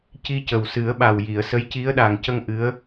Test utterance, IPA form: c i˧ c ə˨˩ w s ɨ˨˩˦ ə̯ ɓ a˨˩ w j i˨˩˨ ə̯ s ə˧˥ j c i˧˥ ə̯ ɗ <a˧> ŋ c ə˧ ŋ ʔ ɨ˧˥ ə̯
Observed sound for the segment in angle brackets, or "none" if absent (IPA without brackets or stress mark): a˨˩